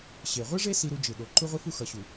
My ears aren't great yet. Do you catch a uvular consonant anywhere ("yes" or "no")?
yes